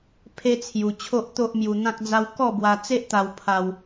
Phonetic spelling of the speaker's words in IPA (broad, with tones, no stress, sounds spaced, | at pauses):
pʰ e˦ t͡sʰ j u˧ t͡ɕʰ o˦ ʔ t̪ o˦ ʔ m j u˧ n̪ ã˦ k̚ d͡z a˦ w k ɔ˥˧ b w a˧ t͡s e˦ ʔ t̪ a˧ w pʰ a˧ w